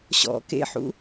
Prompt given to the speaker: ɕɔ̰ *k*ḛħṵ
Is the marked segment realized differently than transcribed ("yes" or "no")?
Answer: no